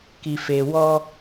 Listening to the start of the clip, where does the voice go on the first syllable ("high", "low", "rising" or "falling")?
low